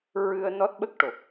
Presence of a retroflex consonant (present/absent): present